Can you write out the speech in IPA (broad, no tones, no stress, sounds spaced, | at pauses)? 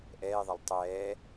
ʔ ɛː ðˤ ɛ lˠ tˤ ɛː